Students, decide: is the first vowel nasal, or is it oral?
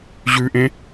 oral